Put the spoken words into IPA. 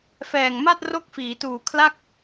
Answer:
f ɛː˨˩ ŋ m a˥˩ t̚ r o˥˩ k̚ f iː˩˦ t uː˨˩ kʰ l a˥˩ k̚

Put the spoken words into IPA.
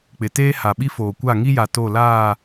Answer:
k͡p ɪ˨ t eː˦ h a˨ ɓ i˦ f oː˨ kʷ a˦˨ ŋ i˦ j a˨ t o˦˨ l aː˦˨

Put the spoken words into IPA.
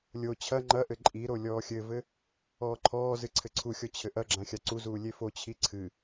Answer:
lʲ o t͡ɕʰ ɐ ŋ͡ǃ ɐ ʔ ɘ ǃʼ i ɾ o lʲ ɔː xʲ ɘ v ɘ | ɔː ǃʰ ɔː z ɨ ǀʰ ɘ ǀʰ u xʲ ɔ t͡ɕʰ ɘ ʔ ɐ ɡ͡ǁ ã xʲ a ǀ u z uː lʲ e f o t͡ɕʰ i ǀʰ ɨ

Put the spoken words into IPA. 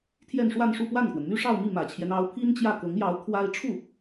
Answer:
t̪ʰ j ɛ˥˧ n ʂ w a˥˧ n ʂ u˥˧ p w a˥˩ n k w ə˩ n m y˥ ʂ ɑ˥˧ ʊ̯ m i˥˩ m ä˨˩ t͡ɕʰ j ɛ˦ n ɑ˧˥ ʊ̯ pʰ i˥ n t͡ɕ j ä˥˩ k ɤ˧˥ ŋ j ɑ˧˥ ʊ̯ kʰ w a˥ ɪ̯ ʈ͡ʂʰ u˥˩

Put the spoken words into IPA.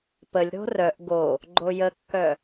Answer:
p ə lʲ ɾ o̤ r œ ʔ ɡ o | ɡ͡ǃ o j ə kː œ

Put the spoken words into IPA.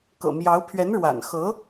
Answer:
k ɤ̰˨˩ m j ɑ˧˥ ʊ̯ pʰ ɥ ɛ˧˥ n ɻ w a̰˨˩ n x ɤ˧˥

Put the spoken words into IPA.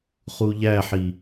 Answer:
χ u ʎ æ ħ i

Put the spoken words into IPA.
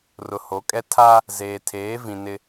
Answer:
r ʊ˨ h o˨˦ kʼ ɛ˦ tʰ a˦ | z eː˨ tʰ eː˨˦ v ĩ˨ n ɪ˦

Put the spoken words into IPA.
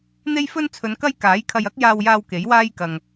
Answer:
n̪ e˥ j f ɵ˥ n t͡sʰ ɵ˨˧ n k ɐ˥ j k aː˨˥ j kʰ ɐ˧ j ɐ˥ k̚ j aː˧ w j aː˧ w k e˨˥ j w aː˥ j k ɐ˨ ŋ

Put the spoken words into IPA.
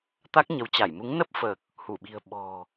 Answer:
t̪ a˦˥ k̚ ɲ ə˨˦ w t͡ɕ a˧˩ j m u˨˦ ŋ n ə˦˥ p̚ f əː˨˩ k̚ | h u˧˩ ɓ i̤˨˩ ə̯ ɓ ɔ̤˨˩

